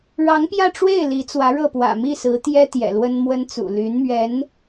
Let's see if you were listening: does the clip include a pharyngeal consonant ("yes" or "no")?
no